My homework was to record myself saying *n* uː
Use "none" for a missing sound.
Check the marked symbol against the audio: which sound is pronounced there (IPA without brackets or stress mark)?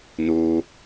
n